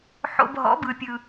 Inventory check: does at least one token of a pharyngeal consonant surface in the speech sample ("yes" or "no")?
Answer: yes